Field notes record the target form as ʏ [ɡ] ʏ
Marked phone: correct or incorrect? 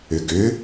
correct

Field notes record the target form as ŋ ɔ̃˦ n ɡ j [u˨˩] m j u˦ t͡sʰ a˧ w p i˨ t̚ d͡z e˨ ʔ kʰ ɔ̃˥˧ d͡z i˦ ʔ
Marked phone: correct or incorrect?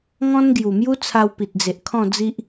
correct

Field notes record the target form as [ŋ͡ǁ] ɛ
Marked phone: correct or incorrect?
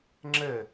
correct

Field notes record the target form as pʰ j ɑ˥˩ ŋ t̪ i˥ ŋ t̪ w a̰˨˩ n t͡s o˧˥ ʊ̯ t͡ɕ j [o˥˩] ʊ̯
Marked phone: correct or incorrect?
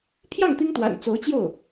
correct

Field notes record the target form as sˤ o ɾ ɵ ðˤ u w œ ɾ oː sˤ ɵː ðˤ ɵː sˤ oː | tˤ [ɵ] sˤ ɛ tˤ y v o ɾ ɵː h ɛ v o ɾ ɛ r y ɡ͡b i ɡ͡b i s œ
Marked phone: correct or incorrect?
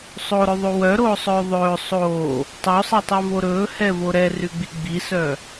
incorrect: o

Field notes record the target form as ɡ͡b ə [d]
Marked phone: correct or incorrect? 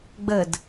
correct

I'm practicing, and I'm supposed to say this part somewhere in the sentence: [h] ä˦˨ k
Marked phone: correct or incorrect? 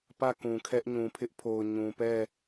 incorrect: p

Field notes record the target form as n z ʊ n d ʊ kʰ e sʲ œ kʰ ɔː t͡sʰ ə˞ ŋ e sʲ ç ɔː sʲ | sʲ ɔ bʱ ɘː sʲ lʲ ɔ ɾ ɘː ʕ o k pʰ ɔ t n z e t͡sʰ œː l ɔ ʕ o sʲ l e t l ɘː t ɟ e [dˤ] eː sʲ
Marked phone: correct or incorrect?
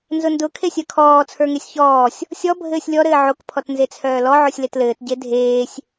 incorrect: dʱ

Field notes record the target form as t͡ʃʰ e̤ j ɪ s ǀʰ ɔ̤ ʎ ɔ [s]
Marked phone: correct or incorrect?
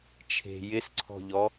incorrect: none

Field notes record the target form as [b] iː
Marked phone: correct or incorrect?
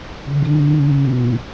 correct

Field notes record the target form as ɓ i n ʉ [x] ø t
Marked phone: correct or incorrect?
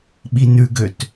incorrect: ɡ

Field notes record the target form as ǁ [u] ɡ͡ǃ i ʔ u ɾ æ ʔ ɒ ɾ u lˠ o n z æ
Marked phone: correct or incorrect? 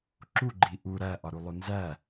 correct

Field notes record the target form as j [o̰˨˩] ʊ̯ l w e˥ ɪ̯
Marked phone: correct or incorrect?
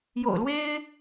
correct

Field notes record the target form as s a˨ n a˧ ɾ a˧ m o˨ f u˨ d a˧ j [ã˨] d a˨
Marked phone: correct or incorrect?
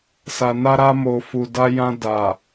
incorrect: ã˧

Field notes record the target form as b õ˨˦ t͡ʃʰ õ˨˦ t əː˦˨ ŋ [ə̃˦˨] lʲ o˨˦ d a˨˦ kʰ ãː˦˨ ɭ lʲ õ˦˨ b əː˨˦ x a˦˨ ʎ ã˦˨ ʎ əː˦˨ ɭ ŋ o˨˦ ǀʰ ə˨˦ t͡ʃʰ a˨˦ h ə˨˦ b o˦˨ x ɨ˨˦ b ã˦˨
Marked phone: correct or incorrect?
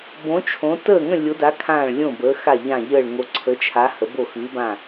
correct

